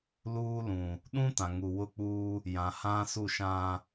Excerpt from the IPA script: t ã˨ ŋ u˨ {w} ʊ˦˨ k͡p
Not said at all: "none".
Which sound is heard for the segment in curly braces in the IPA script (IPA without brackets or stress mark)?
w